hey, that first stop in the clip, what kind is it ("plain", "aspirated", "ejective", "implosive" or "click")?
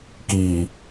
plain